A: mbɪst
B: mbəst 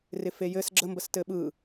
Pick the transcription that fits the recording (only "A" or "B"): B